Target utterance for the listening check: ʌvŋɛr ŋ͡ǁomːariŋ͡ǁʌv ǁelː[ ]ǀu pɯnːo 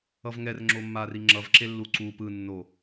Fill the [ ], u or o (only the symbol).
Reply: u